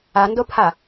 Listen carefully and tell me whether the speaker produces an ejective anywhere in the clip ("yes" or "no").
no